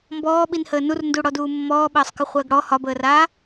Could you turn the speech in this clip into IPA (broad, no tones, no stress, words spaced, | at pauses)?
mbɔːɓinhəː nurnduɽɔduː mːɔːɓəːsˤkəχʷəːɡ ɽɔ hɒbəːraː